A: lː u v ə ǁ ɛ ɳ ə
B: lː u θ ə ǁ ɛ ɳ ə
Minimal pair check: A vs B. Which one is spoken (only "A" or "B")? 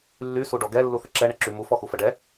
B